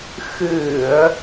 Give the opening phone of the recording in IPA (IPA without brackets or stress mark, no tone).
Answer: x